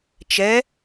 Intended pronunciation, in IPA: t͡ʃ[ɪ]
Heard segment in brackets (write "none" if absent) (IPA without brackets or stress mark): ɛ